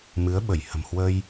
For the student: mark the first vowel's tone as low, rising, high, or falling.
rising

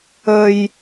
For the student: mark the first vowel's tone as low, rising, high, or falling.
high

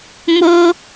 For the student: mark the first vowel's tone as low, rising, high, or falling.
high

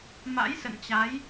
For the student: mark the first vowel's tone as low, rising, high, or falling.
rising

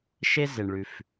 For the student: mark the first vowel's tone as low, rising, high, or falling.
high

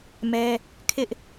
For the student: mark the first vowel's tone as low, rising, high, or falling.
high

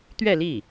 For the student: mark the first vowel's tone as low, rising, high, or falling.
falling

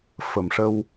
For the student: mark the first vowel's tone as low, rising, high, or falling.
low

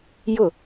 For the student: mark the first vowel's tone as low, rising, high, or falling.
falling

